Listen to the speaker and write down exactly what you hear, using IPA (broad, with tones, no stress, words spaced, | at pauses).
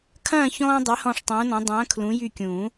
kʰɐ̃ː˦˨ çɔ̃ː˦dˤe˨˦ hɔ̃˦˨ʂtˤũː˨˦nɔ̃˨˦ dˤɐ̃ː˨˦ kʰlũ˨˦jy˦˨kʲũː˨˩˦